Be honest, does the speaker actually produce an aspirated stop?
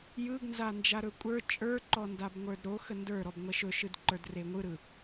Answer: no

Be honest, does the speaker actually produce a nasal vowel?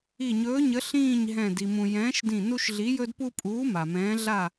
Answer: yes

